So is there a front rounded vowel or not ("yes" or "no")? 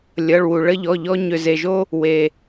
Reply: yes